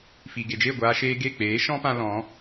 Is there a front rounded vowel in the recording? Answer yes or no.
no